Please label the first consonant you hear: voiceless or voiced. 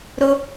voiced